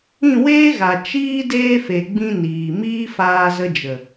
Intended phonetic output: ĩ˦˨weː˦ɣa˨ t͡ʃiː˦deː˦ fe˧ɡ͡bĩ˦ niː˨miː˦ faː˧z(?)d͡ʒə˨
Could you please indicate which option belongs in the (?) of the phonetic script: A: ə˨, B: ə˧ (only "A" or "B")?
B